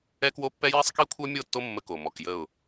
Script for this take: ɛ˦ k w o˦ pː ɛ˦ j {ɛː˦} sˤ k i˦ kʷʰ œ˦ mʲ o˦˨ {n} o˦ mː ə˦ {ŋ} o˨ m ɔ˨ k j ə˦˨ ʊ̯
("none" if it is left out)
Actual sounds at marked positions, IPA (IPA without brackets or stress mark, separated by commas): ɛ˦, tː, k